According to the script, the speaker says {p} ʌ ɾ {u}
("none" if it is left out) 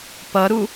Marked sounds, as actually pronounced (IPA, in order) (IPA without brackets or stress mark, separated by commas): p, u